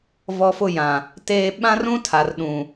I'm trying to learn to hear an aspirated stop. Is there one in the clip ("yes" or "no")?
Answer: yes